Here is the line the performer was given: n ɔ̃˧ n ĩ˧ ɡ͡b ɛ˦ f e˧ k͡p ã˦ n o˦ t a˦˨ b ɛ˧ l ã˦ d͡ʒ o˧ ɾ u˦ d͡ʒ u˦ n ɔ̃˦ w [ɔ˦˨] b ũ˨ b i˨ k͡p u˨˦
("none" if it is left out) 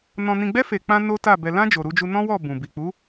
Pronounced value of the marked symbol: ɔ˦˨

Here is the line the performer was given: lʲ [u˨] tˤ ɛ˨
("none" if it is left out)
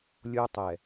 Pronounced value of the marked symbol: o˨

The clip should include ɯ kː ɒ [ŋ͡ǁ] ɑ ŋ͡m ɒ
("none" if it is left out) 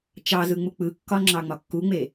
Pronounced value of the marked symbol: ŋ͡ǁ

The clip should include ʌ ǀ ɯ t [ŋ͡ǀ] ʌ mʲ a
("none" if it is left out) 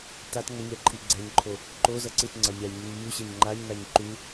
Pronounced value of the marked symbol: ŋ͡ǀ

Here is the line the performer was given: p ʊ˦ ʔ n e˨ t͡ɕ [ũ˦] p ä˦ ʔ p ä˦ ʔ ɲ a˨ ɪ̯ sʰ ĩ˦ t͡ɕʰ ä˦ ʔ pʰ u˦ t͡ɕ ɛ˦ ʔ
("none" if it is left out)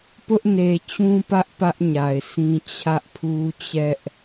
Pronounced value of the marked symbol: ũ˦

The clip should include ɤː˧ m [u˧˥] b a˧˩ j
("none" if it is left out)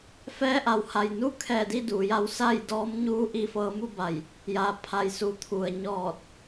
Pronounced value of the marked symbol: u˥˨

